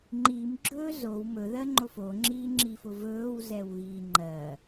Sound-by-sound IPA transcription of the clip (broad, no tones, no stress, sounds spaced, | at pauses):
ŋ͡ǃ i m ɡ͡ǁ ɵː z o w m ɵ ð ɜ ŋ͡ǃ o f o ŋ͡ǁ iː ŋ͡ǁ i f ʊ v ɵː w z ɛ w ɣ iː ŋ͡ǃ ɜ